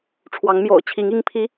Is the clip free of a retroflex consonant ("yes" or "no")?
no